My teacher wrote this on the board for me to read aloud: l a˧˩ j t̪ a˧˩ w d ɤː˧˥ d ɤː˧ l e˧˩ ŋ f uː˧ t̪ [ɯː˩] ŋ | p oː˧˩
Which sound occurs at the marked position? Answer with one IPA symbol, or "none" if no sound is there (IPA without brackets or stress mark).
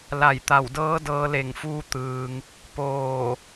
ɯː˩